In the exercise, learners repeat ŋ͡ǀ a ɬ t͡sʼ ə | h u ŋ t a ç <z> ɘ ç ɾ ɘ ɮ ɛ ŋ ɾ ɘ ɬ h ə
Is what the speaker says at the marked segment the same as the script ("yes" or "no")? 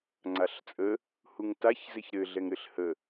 yes